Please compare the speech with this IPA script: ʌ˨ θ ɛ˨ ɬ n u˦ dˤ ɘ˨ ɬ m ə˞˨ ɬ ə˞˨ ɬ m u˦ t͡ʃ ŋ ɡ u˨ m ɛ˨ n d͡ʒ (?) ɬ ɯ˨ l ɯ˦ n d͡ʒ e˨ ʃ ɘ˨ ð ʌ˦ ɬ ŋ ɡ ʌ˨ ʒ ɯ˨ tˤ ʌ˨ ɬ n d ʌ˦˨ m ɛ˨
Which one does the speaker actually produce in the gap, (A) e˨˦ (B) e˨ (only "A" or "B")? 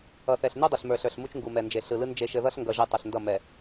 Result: B